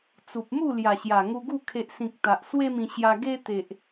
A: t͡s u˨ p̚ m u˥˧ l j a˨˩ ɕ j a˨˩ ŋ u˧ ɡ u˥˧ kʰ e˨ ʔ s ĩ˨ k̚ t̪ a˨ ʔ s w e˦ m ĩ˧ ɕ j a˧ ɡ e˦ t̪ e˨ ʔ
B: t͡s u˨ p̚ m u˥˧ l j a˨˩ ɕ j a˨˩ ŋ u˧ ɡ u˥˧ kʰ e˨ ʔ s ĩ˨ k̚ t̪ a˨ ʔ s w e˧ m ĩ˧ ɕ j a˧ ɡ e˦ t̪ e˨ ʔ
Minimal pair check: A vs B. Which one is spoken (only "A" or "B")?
A